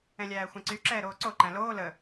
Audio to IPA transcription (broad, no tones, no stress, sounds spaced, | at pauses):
ɛ̃ lʲ æː xʷ ɛ̃ ǀ y ǁ ɛː ɾ oː ǀ o ǃ æ̃ l oː l ə